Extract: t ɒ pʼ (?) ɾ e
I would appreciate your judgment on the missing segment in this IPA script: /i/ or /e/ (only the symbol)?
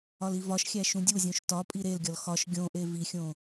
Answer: i